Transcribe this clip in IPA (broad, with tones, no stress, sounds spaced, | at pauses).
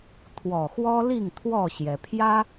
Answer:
t̪ʰ w ɔ˨˩ x w ɔ˦ l i˥˨ ŋ t̪ʰ w ɔ˥˨ ɕ j ɛ˩ pʰ j ä˦